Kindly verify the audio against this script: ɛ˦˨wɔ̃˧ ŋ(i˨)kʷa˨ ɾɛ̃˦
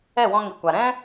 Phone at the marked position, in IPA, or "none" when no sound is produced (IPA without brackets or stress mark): i˨